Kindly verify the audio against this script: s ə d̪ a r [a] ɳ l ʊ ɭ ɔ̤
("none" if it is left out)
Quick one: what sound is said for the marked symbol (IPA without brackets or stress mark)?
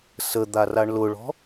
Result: a